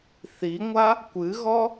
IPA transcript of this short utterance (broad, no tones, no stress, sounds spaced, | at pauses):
θ i ŋʷ a | kʷ ɨ ɣ ɔ